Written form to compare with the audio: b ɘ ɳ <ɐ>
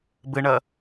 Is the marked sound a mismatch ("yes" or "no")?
no